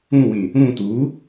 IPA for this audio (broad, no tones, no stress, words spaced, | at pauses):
ũwĩ | ũ tu